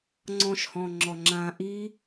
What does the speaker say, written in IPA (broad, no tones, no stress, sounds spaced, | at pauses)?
ŋ͡ǀ ɔ̃ ʃ h ɔ̃ː ŋ͡ǁ ɔ ŋ͡ǁ ãː ʔ i